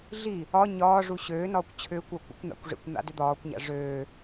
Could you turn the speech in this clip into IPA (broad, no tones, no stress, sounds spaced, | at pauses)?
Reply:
ɮ i | ɒ ɲ ɒː ʐ u ɕ øː n ɒː kʷ t͡ɕʰ ʏː kʷ a kʷ a̰ kʷ n̪ a̰ kʷ ʐ ḭ kʷ n̪ a̰ d ʏ d̪ ɒː kʷ ɲ a̰ ʐ øː